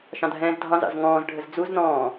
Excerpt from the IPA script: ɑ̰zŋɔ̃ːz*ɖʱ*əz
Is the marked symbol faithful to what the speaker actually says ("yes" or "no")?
yes